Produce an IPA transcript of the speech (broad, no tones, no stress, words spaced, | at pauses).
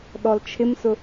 ɗɔlt͡ʃʰɪmsʊ